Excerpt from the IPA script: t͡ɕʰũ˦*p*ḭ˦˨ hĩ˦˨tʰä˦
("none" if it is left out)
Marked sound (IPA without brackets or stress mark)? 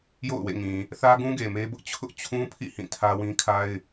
pʰ